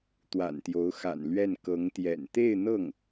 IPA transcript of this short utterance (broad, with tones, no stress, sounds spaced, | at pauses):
t̪ w a̰˨˩ n t̪ j o˧˥ ʊ̯ x a̰˨˩ n l ɥ ɛ˥˩ n k ɤ˧˥ ŋ t̪ j ɛ̰˨˩ n t̪ e˥˧ ɪ̯ n̪ ɤ˥˩ ŋ